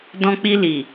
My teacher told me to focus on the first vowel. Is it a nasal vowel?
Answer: yes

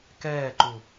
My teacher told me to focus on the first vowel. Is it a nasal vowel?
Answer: no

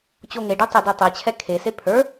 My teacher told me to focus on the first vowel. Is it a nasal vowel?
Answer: no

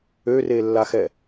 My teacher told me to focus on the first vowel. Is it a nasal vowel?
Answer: no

